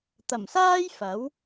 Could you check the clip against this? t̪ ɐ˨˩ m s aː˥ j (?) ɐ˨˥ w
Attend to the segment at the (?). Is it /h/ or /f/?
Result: f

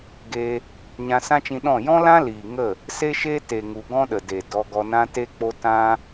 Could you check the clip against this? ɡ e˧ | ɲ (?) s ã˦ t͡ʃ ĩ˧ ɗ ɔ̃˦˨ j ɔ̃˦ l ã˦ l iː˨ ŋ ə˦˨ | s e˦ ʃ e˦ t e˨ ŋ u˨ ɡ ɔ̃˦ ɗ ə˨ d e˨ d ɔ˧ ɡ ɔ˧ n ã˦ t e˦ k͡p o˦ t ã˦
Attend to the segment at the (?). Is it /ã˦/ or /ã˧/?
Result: ã˧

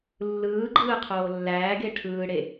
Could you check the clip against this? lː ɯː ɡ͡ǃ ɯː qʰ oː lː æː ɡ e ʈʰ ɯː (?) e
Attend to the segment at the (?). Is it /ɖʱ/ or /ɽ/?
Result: ɽ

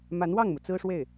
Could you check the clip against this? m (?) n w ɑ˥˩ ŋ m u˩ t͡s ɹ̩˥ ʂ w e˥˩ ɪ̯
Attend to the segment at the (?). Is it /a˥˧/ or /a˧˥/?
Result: a˧˥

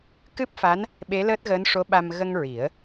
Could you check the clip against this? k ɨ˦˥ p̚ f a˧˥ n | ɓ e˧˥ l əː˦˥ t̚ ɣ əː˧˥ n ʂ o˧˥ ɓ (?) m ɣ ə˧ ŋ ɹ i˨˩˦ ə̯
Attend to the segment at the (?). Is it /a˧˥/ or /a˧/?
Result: a˧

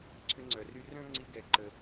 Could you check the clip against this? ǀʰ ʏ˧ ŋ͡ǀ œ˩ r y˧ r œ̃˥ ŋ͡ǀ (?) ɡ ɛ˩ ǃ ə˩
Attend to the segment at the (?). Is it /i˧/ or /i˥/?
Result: i˧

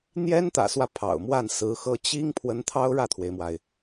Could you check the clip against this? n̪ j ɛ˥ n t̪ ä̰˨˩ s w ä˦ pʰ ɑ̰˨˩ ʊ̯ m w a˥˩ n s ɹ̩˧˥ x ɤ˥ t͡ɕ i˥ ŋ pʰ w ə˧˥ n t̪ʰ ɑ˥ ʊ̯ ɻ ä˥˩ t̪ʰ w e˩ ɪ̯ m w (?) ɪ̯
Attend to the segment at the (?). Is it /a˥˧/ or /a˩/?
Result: a˩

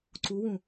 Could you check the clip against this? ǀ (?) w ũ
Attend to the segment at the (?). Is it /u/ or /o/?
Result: u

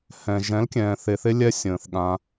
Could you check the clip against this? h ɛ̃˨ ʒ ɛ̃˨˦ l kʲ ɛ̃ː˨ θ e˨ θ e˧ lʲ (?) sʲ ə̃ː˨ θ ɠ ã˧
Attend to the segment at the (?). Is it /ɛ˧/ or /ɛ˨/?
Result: ɛ˧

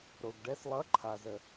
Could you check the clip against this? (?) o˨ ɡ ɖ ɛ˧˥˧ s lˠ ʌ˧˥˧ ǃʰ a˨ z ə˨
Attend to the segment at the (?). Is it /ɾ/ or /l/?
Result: ɾ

